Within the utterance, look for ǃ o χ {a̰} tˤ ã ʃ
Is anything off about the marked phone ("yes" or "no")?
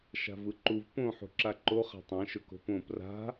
yes